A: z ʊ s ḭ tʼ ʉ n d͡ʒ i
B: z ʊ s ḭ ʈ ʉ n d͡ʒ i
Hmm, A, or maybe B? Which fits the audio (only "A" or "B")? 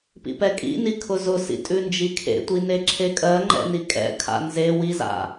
A